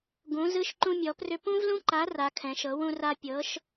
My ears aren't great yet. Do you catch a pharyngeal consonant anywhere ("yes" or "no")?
no